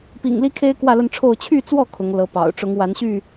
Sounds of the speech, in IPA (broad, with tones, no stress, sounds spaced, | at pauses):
p ḭ˨˩ ŋ l i˦ kʰ e˦ ɪ̯ k w ä˥˨ l ə˥˨ n ʈ͡ʂʰ o˥˨ ʊ̯ t͡ɕʰ y˥˨ t͡s w ɔ˥˨ kʰ ʊ˨˦ ŋ l ɤ˨˦ p ɑ̰˨˩ ʊ̯ ʈ͡ʂ ʊ˨˦ ŋ w a˨˦ n ɕ y˥˨